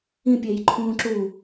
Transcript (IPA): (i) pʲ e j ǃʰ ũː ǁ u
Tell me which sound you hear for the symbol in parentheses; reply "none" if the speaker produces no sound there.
ĩ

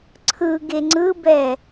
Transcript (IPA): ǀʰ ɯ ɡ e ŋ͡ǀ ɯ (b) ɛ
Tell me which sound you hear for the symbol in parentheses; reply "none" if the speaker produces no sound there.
b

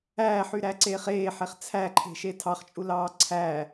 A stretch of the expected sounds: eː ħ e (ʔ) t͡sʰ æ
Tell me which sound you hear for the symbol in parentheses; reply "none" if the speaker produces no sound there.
χ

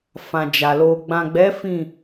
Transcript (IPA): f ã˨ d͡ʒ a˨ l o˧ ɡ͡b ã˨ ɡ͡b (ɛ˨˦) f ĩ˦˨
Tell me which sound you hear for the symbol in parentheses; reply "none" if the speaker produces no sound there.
ɛ˨˦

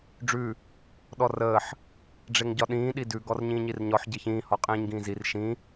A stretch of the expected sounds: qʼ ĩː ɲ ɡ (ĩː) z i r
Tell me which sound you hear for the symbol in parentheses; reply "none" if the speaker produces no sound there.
ĩː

